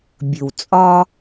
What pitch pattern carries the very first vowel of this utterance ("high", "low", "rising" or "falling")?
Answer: low